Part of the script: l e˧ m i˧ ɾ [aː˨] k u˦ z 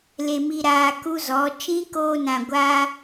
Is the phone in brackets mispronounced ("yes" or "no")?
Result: yes